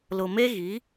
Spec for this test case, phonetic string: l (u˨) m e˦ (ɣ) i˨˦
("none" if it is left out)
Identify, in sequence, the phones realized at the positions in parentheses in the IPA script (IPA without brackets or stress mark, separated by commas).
ʊ˨, ɣ